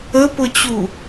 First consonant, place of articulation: labial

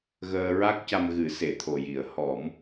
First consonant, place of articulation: velar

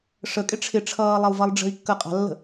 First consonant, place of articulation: retroflex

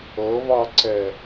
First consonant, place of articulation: labial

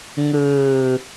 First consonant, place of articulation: velar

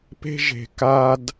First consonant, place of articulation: labial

